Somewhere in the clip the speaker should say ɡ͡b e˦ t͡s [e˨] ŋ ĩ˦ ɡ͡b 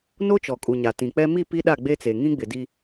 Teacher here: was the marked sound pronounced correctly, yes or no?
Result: yes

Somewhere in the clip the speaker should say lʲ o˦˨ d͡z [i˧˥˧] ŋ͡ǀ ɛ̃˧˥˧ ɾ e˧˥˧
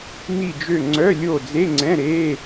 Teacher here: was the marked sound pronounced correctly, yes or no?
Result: no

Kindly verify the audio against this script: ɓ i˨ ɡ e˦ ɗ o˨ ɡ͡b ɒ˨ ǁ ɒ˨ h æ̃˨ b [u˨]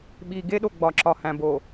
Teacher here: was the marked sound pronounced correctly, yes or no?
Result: no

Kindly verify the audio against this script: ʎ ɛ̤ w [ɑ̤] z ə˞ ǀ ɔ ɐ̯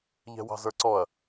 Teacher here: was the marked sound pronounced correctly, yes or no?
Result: yes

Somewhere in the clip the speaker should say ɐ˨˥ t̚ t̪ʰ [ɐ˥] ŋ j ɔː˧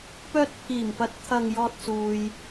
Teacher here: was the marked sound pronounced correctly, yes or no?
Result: no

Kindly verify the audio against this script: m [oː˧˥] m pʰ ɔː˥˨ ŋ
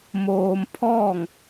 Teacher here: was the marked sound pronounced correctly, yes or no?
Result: no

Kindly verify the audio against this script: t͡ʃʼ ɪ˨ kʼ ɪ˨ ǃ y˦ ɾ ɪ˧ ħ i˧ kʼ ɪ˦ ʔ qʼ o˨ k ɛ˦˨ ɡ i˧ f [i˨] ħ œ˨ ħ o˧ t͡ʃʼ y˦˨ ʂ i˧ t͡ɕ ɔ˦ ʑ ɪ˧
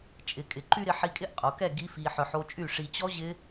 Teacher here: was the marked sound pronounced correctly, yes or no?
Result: yes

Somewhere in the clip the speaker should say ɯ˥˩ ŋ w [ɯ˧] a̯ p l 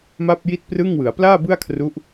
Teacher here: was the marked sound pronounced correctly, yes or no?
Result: no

